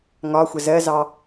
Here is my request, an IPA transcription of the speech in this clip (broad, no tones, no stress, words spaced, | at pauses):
ŋɒ xʷəzɜzɑ